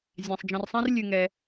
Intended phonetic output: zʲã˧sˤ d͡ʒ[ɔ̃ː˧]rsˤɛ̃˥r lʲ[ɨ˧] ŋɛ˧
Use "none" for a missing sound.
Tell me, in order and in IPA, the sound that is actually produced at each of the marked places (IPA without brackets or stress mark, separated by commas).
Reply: ɔ̃˧, ɨ˧